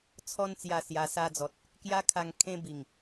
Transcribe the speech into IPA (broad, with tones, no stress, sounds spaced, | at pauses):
t͡sʰ ɔ˧ n t͡s j a˨˩ s j a˨˩ s a˧ d͡z ɔ˨ t̚ | k j a˦ kʰ a˧ ŋ kʰ ẽ˦ b i˨˩ ŋ